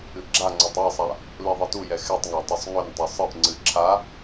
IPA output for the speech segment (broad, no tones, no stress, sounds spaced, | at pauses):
ɨ ɡ͡ǁ a ŋ͡ǀ ɛ tˤ a sˤ a | l i ðˤ ɨ t u j ɛ x ɛ tˤ ŋ a tˤ ʏ sˤ ŋ ʏ n tˤ ʏ sˤ ɨ ʔ ŋ͡ǀ ɨ ǁʰ a